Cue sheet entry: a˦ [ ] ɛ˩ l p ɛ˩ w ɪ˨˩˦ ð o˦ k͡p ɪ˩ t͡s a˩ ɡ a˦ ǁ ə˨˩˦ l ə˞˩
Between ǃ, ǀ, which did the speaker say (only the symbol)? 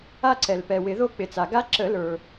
ǀ